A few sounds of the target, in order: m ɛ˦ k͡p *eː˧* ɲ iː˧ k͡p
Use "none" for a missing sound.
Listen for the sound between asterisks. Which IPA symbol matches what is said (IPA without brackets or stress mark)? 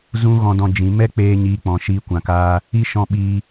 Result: eː˧